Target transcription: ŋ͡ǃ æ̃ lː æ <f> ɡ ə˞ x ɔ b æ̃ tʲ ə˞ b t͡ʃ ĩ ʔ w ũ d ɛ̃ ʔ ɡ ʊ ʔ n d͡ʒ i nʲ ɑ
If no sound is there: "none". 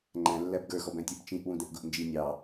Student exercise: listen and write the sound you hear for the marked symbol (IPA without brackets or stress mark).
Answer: b